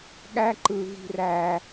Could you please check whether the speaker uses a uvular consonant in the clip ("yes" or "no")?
no